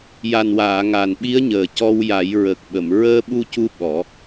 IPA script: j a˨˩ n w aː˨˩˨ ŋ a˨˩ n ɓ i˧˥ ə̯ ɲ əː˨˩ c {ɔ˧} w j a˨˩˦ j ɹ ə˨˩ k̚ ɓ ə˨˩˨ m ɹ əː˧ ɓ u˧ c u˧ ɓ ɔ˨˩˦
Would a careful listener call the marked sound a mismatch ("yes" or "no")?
no